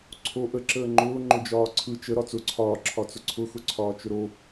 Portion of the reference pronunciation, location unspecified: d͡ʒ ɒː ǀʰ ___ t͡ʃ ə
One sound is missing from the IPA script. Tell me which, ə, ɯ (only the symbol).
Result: ɯ